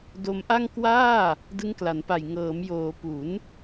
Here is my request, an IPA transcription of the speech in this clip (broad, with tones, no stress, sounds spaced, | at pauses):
d o˧ m ʔ a˥˩ ŋ k w aː˥˩ | d ɯ˦˥ ŋ k l a˩˦ n p a˨˩ j ŋ ɤː˩˦ m j oː˩˦ p u˩˦ n